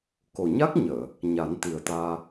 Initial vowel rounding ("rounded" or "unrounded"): rounded